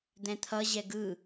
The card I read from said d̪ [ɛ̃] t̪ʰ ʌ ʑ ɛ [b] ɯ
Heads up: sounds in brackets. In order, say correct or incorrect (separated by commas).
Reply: correct, incorrect